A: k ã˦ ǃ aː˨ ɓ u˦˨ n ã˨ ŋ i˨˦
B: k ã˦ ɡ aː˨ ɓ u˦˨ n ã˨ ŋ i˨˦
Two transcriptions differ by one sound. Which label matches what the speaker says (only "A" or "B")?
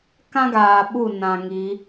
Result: B